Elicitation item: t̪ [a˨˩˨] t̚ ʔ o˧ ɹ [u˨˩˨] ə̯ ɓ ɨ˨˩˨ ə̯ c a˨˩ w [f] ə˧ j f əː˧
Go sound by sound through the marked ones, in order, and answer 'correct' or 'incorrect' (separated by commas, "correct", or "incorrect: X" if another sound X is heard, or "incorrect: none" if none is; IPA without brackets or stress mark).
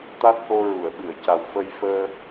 incorrect: a˦˥, correct, correct